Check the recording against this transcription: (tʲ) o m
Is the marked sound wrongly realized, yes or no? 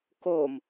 yes